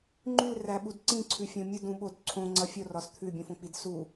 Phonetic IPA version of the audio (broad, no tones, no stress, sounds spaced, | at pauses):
ŋ͡ǃ ʉ l r æ ɓ u d ǀ ĩ ǀʰ ʉ fʲ õ mʲ u d ũ ɓ o d ǀʰ õ ŋ͡ǀ ʌ fʲ o r ɒ s t̪ʰ ʉ bʲ ũ f õ k͡p i d s u